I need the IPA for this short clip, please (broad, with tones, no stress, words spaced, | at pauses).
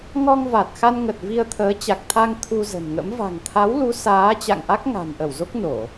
ŋɔ˧ŋva˨˩t̚ xa˧nŋə˨˩t̚ vi˧ə̯t̪ʰəː˨˦t͡ɕa˨˩k̚t̪ʰa˧ŋ t̪ʰu˧zə̤˨˩nŋə̰˧˥m va̤˨˩ŋt̪ʰa˨˦wlu˨˦ saː˨˦t͡ɕa̰˧˨ŋʔa˦˥k̚ ŋa̤˨˩nʔə˧˩wzo˦˥k̚no˧˩˨